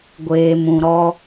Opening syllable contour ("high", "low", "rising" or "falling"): low